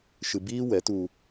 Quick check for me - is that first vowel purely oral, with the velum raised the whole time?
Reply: yes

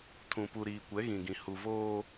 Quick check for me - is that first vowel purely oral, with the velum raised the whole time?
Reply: no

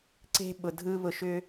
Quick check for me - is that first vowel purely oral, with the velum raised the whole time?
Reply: yes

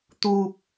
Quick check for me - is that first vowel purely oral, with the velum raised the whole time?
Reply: yes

